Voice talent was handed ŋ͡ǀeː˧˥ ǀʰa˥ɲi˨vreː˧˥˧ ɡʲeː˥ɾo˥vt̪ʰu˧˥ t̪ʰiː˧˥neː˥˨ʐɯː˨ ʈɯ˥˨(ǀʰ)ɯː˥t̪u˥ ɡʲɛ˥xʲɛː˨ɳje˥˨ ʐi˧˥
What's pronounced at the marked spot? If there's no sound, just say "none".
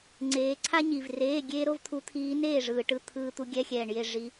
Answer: t̪ʰ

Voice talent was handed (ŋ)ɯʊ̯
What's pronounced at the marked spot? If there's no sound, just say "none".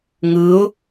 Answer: ŋ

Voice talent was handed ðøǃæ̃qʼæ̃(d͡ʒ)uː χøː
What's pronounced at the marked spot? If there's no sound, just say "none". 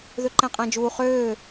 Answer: d͡ʒ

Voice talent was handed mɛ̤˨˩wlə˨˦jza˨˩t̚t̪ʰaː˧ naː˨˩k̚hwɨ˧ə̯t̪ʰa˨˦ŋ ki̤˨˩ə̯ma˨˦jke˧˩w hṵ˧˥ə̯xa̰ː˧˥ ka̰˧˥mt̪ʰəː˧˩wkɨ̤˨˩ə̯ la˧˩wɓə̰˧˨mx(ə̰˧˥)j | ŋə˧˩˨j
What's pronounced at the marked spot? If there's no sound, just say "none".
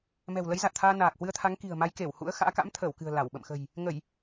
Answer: ə̤˨˩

